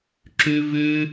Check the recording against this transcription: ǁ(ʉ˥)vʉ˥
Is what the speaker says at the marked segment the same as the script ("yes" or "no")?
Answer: yes